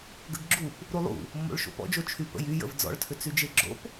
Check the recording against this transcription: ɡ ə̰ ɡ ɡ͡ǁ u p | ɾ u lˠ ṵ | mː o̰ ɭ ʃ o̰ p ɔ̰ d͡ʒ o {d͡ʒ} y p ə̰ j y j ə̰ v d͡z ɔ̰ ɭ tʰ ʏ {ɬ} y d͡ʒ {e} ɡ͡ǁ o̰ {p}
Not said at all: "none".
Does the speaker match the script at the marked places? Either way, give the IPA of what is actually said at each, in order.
t͡ʃʰ, t͡s, e, p

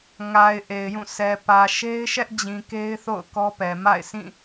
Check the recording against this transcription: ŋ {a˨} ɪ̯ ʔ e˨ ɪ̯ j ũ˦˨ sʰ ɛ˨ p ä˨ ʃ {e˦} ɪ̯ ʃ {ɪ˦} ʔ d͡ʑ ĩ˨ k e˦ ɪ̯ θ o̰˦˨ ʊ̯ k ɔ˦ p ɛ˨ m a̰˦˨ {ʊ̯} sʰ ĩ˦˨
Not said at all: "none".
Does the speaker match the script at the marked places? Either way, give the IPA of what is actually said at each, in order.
a˨, e˦, ɛ˦, ɪ̯

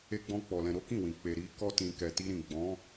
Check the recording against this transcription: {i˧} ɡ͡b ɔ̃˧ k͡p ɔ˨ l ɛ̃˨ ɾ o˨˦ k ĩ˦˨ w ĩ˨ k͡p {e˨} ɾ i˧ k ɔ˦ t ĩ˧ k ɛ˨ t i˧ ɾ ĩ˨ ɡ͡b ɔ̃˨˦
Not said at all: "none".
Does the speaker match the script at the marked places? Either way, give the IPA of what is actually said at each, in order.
e˧, e˨

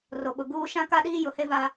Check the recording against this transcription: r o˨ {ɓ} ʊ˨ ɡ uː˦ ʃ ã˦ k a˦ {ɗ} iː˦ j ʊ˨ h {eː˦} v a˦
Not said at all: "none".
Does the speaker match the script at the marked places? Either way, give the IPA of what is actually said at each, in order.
ɓ, ɗ, e˦

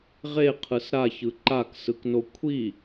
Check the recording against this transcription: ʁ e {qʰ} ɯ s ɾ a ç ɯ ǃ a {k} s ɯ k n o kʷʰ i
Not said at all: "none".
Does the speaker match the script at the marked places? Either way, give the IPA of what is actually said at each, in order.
qʰ, k

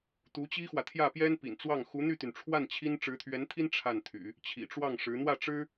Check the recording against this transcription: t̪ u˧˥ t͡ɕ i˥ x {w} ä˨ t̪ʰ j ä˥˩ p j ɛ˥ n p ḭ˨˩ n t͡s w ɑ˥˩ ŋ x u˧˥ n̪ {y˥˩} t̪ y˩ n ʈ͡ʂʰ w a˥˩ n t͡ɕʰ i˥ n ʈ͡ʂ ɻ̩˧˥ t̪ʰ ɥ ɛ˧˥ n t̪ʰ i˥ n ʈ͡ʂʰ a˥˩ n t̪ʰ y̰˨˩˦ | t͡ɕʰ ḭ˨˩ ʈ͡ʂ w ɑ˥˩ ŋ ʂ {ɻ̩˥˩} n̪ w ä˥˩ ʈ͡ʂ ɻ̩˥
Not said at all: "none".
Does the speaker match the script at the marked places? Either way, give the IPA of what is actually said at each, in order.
w, y˥˩, ɻ̩˧˥

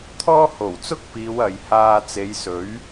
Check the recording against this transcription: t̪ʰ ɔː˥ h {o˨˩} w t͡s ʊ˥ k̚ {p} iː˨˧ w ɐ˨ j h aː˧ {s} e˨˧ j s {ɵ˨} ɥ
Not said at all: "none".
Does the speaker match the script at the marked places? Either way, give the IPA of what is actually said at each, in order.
o˨˩, p, t͡s, ɵ˨˥

